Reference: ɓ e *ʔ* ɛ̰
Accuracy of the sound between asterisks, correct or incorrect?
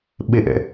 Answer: correct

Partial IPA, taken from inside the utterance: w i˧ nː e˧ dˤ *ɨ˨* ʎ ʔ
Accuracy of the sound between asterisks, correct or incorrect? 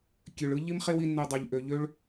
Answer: incorrect: e˨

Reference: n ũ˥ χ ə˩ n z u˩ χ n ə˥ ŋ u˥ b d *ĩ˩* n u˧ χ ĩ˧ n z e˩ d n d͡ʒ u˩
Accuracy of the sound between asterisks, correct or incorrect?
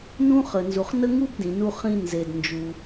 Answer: correct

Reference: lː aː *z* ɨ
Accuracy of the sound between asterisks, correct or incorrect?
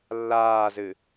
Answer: correct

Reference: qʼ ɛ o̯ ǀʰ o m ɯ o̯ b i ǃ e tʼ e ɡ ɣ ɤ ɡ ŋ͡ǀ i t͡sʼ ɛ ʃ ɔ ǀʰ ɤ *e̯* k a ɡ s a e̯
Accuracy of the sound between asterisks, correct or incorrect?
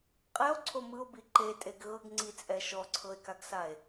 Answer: correct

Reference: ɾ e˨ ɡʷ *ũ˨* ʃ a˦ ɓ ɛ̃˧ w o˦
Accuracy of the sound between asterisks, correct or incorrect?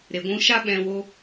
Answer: incorrect: ũ˧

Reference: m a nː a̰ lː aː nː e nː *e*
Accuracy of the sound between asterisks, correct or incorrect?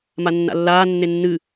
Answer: incorrect: ɨ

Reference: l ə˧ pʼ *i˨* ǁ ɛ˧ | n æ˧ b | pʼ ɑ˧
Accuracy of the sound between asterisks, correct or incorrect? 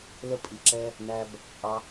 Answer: correct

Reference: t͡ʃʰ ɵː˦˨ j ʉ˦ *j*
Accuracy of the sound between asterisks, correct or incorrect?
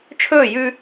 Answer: incorrect: none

